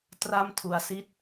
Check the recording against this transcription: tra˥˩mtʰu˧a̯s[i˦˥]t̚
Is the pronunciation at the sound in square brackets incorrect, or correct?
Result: incorrect